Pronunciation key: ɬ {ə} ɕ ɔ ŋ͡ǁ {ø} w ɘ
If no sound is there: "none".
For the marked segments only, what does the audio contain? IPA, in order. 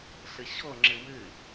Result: ə, ɘ

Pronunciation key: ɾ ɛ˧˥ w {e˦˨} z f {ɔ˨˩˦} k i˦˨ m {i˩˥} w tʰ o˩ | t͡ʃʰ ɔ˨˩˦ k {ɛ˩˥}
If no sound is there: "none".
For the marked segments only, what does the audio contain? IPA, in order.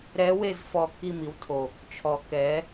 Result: e˦˨, ɔ˦˨, i˩˥, ɛ˩˥

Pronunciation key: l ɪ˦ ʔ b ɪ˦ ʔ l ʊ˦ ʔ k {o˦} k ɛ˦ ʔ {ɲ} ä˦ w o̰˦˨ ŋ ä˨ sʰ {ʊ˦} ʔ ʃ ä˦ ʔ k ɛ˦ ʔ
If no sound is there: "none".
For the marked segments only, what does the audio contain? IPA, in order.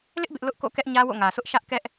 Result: o̰˦˨, ɲ, ʊ˦

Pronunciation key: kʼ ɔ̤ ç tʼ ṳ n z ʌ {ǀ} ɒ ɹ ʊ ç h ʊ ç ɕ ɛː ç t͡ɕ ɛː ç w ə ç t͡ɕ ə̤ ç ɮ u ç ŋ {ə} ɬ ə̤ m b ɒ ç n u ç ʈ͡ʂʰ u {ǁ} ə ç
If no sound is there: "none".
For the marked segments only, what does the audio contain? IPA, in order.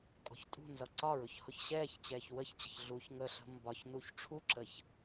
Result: ǀ, ə, ǁ

